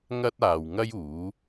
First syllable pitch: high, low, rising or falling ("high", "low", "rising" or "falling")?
high